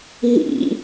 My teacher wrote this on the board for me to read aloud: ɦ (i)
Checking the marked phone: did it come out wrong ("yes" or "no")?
yes